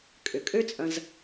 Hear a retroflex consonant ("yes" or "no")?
no